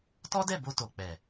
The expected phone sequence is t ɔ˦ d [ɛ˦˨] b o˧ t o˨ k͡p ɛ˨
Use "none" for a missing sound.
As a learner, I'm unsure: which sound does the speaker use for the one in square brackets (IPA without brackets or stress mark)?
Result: ɛ˦˨